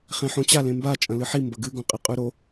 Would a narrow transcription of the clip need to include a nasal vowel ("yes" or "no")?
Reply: yes